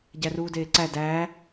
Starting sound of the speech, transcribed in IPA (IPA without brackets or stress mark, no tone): ɟ